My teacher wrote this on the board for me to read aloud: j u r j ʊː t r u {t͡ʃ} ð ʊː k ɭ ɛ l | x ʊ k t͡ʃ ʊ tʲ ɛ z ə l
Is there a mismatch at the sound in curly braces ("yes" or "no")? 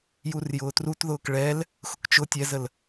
yes